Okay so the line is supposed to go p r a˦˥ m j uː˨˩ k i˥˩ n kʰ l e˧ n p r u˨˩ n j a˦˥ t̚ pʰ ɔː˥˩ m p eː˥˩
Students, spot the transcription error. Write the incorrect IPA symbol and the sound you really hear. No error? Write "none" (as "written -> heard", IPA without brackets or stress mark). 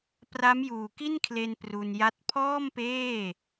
u˨˩ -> u˧